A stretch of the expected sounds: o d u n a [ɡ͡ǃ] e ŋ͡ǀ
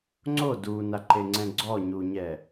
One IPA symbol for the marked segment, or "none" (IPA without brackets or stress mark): ǃ